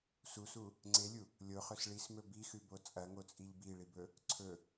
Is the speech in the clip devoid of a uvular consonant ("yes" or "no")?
no